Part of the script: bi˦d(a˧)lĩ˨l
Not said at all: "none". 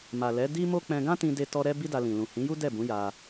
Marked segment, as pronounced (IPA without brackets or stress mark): a˧